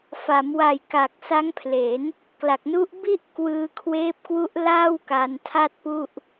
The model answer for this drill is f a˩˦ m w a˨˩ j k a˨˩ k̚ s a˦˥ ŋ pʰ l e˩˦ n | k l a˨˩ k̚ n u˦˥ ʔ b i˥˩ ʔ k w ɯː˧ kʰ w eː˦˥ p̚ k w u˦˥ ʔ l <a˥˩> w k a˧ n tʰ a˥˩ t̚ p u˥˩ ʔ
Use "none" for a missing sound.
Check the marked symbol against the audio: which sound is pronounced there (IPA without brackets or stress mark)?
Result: aː˥˩